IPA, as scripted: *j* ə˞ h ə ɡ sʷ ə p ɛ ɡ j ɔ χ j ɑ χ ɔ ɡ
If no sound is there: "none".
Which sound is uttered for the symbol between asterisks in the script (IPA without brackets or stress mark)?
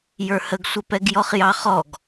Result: j